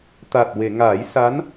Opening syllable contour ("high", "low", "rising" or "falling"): low